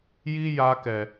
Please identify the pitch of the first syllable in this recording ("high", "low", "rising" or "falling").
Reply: high